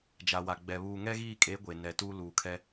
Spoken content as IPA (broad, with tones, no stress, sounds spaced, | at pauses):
d͡ʒ a˨ w a˨ ɡ͡b ɛ˨ β uː˨ ŋ ɛ˦ ɣ iː˦˨ kʼ e˨˦ ɡʷ e˨ n ɛ˨ t uː˦ l uː˨ kʰ ɛ˦